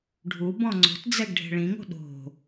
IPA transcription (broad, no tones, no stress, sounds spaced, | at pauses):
ɖʱ u b ɔ̃ ŋ͡ǀ o̤ t d͡z ɛ ɡ ɖʱ e̤ ɭ ĩ ŋ o̤ ɗ o̤